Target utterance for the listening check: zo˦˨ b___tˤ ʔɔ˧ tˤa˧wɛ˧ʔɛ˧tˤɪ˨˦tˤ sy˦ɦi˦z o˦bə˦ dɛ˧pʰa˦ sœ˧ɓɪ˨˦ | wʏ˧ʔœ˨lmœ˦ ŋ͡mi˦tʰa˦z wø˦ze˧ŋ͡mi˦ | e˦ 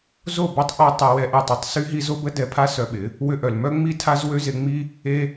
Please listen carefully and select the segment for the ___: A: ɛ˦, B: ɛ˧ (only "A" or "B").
A